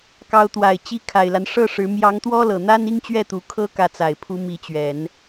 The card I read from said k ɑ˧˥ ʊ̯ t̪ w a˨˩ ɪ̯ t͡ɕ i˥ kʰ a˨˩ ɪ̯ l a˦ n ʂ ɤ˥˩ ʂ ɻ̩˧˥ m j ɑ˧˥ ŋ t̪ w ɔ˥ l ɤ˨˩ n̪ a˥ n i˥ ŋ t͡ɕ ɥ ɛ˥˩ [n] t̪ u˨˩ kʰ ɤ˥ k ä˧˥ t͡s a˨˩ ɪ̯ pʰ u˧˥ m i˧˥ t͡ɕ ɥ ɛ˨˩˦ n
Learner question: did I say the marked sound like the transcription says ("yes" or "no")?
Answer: no